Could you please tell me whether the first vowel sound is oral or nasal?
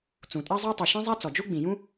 nasal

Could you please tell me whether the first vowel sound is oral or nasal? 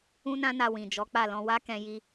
nasal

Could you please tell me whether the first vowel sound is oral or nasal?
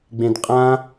nasal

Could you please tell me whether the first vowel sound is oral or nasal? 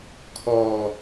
oral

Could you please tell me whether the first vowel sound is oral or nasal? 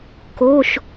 oral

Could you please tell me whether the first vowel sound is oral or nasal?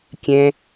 nasal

